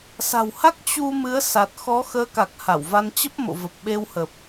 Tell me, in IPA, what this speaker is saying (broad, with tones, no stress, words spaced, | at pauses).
sa̤˨˩wha˦˥k̚ t͡ɕu˧ mɨ˨˦ə̯sa˨˩t̚ xɔ˨˦xəː˨˦ka˨˩k̚ ha˧˩wva˧n t͡ɕə˦˥p̚mo̰˧˨və˨˩p̚ ɓe˧whə˨˩p̚